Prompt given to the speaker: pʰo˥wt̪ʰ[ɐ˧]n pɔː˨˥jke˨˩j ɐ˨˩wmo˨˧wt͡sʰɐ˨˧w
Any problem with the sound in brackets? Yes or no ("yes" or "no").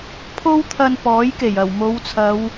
no